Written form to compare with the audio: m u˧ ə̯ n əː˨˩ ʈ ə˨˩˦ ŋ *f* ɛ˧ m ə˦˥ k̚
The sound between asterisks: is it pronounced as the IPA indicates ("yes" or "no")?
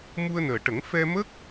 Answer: yes